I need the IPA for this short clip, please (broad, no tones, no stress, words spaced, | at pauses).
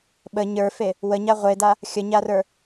ɓə ɲə˞fe | wəɲa ʁʷeda | xʲəɲarə˞